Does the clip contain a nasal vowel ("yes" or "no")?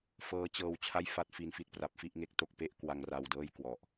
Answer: no